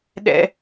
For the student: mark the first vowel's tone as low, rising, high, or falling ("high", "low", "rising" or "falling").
high